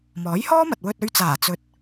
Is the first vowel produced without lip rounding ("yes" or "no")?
no